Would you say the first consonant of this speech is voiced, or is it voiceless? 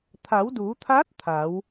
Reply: voiceless